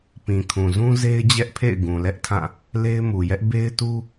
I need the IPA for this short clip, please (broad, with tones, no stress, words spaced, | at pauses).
pĩ˨kʰũ˨zũ˦ ze˦ɪ̯d͡ʑɛ˦ʔpʰḛ˦˨ɪ̯ ɡũ˨lɛ˦ʔtʰã˦˨ | le˦ɪ̯mu˨jɛ˦ʔ be˦ɪ̯tu˦